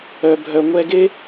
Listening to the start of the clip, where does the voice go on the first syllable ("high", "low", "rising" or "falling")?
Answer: low